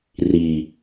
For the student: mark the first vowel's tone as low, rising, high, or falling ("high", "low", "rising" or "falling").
low